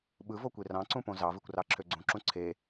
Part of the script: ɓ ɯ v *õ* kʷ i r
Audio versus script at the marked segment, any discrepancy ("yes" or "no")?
yes